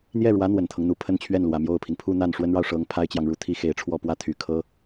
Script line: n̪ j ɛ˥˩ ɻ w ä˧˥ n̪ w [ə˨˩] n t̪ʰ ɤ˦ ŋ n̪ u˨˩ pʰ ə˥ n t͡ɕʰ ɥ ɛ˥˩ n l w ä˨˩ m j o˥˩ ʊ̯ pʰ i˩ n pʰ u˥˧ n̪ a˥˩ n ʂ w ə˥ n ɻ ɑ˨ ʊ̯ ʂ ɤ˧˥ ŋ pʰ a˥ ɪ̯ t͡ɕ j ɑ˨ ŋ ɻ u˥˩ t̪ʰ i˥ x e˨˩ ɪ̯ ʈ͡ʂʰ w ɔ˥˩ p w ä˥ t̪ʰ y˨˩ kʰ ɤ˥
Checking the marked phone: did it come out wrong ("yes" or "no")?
no